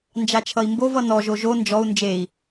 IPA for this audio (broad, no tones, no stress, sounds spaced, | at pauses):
n d͡ʒ a t͡ʃʰ ʌ i̯ m b o v ʌ n ɔ ʒ o ʒ o n d͡ʒ ɔ u̯ n d͡ʒ e i̯